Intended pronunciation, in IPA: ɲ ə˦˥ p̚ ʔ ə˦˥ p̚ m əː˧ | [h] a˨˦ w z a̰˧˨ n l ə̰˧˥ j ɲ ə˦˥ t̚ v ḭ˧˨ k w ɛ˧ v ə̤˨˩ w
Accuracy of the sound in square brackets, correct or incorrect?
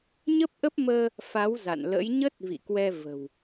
incorrect